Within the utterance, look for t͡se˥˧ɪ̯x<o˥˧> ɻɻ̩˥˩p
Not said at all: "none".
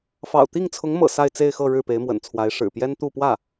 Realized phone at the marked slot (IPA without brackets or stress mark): ɤ˥˧